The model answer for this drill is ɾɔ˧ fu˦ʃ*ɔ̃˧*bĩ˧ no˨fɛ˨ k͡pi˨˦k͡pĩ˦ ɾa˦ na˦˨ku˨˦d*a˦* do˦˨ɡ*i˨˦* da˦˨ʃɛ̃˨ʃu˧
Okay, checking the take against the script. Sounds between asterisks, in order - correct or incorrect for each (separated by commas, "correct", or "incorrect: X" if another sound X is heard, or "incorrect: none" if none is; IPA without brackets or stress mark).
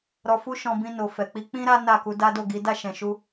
correct, correct, correct